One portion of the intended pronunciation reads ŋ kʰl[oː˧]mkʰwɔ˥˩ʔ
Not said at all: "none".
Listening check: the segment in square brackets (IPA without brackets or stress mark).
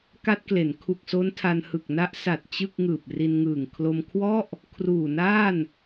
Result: o˧